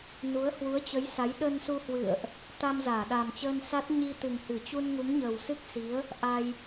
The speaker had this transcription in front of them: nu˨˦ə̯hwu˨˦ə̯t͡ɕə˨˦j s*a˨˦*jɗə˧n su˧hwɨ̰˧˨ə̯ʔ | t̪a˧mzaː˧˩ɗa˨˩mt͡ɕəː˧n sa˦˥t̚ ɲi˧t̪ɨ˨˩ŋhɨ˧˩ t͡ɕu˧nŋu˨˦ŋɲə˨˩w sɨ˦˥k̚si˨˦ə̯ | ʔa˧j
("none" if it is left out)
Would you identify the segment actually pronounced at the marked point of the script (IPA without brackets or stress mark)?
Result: a˨˦